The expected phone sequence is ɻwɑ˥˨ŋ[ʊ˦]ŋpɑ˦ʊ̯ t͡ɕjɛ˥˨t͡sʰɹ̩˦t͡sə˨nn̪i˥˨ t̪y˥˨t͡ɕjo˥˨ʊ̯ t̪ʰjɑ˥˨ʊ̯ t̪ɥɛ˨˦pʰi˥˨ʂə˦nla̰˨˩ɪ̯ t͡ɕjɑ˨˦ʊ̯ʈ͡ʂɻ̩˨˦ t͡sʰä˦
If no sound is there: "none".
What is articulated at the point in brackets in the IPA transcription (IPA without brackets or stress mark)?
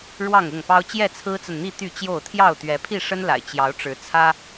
ʊ˥˨